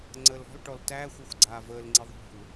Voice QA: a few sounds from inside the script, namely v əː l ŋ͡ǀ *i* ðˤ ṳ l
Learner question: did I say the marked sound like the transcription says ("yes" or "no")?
yes